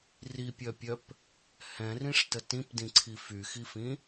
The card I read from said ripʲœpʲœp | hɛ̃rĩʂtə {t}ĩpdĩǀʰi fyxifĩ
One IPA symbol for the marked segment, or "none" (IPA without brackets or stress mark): t